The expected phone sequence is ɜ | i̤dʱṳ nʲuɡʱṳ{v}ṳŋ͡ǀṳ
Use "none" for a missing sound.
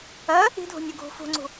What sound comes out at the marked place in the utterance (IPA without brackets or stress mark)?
f